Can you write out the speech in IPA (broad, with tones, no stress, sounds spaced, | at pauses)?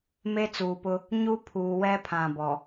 m e˦ t͡s uː˨ p ʊ˦ | ɲ u˦ pʰ uː˨ w ɛ˦ pʰ ã˨ b ɔ˨